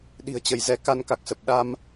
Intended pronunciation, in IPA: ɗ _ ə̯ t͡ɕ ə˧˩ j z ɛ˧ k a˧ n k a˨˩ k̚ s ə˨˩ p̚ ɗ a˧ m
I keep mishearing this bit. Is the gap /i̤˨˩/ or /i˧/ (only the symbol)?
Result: i̤˨˩